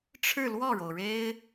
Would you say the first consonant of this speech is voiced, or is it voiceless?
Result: voiceless